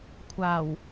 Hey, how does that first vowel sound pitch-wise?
low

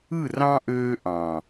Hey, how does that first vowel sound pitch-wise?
falling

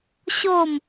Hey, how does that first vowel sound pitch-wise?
falling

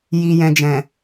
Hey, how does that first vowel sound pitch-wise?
low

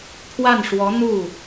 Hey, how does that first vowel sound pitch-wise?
falling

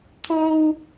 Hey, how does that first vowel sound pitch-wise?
high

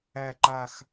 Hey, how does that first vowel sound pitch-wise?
low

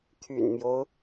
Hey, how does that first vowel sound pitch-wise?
low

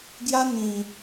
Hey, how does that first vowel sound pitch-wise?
high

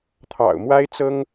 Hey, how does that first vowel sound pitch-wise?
low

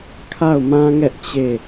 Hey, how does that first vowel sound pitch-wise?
falling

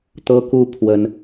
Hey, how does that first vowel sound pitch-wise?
high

